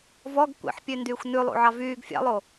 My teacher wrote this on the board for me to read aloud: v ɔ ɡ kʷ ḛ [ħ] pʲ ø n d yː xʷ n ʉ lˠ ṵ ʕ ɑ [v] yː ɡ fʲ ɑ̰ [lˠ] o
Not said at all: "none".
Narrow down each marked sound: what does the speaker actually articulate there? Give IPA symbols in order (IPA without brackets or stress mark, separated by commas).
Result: ħ, v, lˠ